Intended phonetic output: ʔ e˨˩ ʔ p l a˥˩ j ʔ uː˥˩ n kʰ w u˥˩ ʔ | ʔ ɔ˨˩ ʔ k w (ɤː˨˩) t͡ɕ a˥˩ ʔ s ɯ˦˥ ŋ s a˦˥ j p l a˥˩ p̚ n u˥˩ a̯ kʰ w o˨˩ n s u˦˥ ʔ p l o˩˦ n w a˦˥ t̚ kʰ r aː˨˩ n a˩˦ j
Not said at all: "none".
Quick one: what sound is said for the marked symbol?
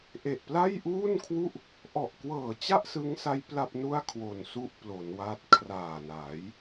ɤː˨˩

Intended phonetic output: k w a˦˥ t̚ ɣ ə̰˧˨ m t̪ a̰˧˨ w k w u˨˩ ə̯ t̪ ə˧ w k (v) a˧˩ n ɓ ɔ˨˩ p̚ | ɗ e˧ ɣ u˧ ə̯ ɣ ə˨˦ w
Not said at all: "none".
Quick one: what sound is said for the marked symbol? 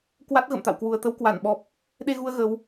w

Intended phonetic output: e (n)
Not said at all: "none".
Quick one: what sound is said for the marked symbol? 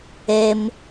m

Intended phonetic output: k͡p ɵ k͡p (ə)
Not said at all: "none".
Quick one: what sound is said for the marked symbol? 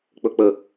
ə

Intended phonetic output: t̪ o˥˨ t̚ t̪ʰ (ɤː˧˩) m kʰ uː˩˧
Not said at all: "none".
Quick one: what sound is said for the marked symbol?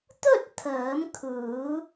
ɤː˩˧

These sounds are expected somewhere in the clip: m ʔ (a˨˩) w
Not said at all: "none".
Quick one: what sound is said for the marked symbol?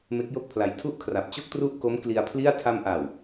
a˨˩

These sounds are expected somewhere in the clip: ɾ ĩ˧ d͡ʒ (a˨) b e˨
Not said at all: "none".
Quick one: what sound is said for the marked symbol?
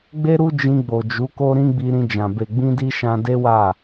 ã˨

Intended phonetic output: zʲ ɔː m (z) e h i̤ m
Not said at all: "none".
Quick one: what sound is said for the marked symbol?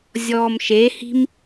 ʃ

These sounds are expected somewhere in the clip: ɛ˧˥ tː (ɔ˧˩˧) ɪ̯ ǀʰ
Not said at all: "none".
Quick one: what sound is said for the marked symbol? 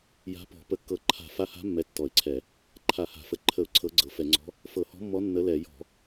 ɔ˧˩˧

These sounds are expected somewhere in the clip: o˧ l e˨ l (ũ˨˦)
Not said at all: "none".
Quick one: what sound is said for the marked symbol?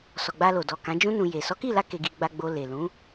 ũ˨˦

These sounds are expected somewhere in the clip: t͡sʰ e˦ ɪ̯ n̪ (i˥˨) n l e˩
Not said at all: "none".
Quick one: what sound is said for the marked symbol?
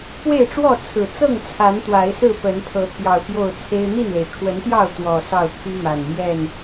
i˥˨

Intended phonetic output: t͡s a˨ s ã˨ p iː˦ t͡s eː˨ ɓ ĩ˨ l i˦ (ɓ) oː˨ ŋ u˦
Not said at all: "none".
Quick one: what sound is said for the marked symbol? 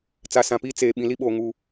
ɓ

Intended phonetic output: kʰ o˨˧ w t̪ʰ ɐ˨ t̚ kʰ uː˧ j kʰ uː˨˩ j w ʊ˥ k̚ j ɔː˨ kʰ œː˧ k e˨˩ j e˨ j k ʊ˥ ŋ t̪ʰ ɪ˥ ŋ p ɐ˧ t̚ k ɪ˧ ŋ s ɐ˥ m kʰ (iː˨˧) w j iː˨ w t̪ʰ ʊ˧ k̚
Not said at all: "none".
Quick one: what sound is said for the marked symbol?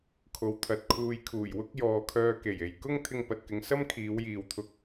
iː˨˧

